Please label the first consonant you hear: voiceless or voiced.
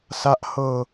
voiceless